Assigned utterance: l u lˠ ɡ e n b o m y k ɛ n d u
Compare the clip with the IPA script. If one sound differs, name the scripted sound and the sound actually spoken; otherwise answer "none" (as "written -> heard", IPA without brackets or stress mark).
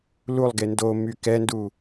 b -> d